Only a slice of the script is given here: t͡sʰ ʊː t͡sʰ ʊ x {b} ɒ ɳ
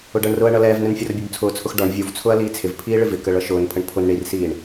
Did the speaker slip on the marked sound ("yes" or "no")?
yes